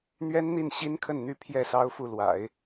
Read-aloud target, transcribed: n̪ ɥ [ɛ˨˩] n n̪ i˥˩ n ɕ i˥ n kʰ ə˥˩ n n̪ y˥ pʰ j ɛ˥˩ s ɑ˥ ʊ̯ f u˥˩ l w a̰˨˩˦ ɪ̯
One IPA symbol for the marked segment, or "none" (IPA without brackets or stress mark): ɛ˥